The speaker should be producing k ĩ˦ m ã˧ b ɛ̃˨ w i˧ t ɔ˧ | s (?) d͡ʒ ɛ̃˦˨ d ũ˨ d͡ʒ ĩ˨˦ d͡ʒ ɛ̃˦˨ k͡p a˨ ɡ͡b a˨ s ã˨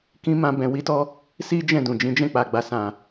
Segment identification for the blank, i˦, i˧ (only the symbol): i˦